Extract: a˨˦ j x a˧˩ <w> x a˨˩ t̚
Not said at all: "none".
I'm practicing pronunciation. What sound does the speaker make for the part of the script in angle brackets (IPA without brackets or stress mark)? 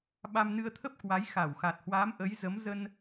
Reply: w